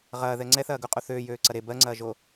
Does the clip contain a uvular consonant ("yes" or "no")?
yes